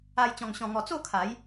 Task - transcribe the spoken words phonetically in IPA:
a˧ j t͡ɕ ɔ̃˧ ŋ ɕ ɔ̃˧ ŋ ɔ˧ t͡s o˥˧ kʰ a˨˦ j

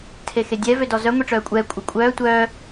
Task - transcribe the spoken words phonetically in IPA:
tʰ e x e dʲ ɛ v ø d ɔ z œ ŋʷ i ʈ͡ʂ œː kʷʼ ɛː kʷʼ œ kʷʼ œː tʷ œː

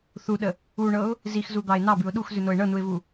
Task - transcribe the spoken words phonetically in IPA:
θ u ɗ ə | u ɳ ɤ ʊ̯ | z i x z u d̪ ɑ ɪ̯ n ɑ b ʉ ʊ̯ ɗ u x z ʉ n o ɪ̯ ɳ ɤ n u ɪ̯ v u

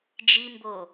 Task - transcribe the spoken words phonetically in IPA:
d͡ʒ i m b o

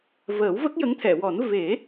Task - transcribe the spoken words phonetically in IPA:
v əː˨˩˦ w v ə˦˥ k̚ j ə˧˥ ŋ t̪ʰ ɛ˨˩˨ w ɔ˨˩˦ n v e˨˩˦

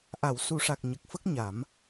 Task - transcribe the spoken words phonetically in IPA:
ʔ a˨˩˨ w s u˨˩˦ ʂ a˨˩ k̚ ɲ ə˨˩ k̚ f ə˦˥ k̚ ɲ a˨˩˦ m

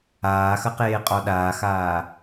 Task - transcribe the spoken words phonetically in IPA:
aː x ɐ q eː qʼ ɔ ɗ aː x aː

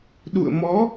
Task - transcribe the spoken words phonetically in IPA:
ɗ ṵ˧˨ ə̯ m ɔ˨˦

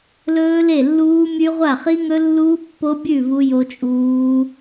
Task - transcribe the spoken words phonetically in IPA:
l ɵː˦˥ l e˥˩ lː uː˦˥ mʲ ʉ˦˥ ʁʷ a˥˩ χ i˦˥ ŋ ɵ˦˥ lː uː˦˥ pː o˦˥ bʲ ʉ˥˩ v u˦˥ j o˦˥ t͡ʃʼ uː˦˥

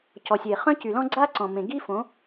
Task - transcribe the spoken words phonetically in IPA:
c ɔ˨ sʲ e˨ χ œ̃˦ c y˨ l ɔ̃˦ ɡ͡ǀ a˦ ǀ ɔ̃˨ m ẽ˨ ɡ i˦ f õ˨˦

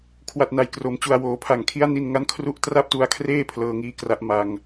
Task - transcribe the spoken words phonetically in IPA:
kʰ w a˨˩ t̚ n a˩˦ j k r o˩˦ m t͡ɕ u˨˩ a̯ w oː˩˦ pʰ a˨˩ ŋ kʰ i˦˥ a̯ n i˧ n ŋ a˦˥ n kʰ r u˦˥ ʔ t r a˥˩ p̚ t u˧ a̯ kʰ r eː˥˩ pʰ l ɤː˧ ŋ iː˧ k r a˦˥ ʔ m a˧ ŋ

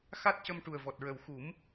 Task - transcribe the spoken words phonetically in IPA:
x a˦˥ t̚ c ə˧ m ʈ u˨˩ ə̯ v ɔ˨˩ t̚ ɹ ə˨˩ w x u˨˩˦ m

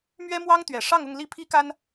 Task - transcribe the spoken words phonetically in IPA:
m ɥ ɛ˥ m w ɑ˥ ŋ t̪ ɥ ɛ˨˩ ʂ ɑ˥˧ ŋ ʊ˥˧ ŋ l i˥˩ pʰ i˥ k a˥ n

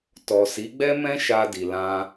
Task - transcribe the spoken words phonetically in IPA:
t ɔ˨ s i˨˦ ɡ͡b ɛ˦ m ɛ̃˦ ʃ a˧ d i˨ l ã˧

